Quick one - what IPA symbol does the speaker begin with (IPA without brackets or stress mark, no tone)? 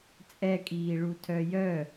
t͡sʼ